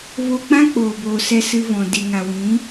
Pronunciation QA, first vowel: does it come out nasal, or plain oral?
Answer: oral